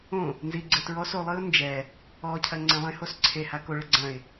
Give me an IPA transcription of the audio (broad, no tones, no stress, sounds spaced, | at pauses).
õ | n z i ɡ͡ǀ ɘ t ɹ ɔ s o lˠ ɨ ʊ̯ n d͡ʒ ɛ | ɔ cʰ ɐ ŋ͡ǀ ẽ lˠ ẽ h o s ǀʰ e h a k o ɭ ɘ ɡ͡ǀ ɐ̃ ɪ̯